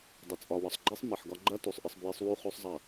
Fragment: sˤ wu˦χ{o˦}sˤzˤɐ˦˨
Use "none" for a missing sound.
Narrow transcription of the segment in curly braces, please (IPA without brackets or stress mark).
o˦